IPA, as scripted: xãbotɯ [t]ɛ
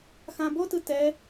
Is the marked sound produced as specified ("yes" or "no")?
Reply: yes